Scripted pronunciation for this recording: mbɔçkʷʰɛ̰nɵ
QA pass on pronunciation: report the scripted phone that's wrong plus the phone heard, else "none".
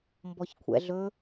n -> ɮ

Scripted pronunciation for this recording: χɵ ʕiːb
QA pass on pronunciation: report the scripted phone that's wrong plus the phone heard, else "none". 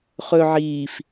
b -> f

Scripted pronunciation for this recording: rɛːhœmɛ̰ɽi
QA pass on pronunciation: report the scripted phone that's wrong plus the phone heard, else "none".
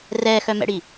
h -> x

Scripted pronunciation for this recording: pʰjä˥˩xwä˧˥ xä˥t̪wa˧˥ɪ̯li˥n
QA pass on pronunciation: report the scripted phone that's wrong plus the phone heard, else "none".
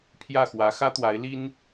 none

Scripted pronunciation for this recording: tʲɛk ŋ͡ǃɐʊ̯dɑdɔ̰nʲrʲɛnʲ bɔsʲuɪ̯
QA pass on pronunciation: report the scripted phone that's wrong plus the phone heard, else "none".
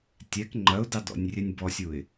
none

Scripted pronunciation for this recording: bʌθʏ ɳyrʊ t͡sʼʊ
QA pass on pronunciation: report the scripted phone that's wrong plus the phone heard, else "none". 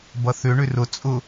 y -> ʏ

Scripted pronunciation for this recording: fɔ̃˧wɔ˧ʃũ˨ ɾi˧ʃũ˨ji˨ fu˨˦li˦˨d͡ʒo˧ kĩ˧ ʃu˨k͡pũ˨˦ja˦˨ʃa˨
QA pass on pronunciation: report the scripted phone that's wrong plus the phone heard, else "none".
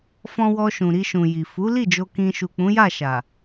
none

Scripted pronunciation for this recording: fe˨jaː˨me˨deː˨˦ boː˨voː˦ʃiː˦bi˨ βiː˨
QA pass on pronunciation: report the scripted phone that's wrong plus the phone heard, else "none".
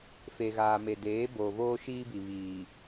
j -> ɣ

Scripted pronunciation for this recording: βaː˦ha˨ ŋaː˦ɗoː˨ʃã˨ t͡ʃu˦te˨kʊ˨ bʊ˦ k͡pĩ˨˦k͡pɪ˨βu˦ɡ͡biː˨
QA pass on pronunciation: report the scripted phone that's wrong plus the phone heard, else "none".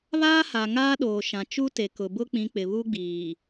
none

